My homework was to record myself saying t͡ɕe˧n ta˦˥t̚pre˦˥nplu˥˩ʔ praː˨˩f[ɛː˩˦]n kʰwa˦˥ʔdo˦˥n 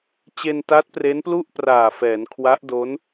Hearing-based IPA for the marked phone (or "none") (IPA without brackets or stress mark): ɛː˩˦